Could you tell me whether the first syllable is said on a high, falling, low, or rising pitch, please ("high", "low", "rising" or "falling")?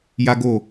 high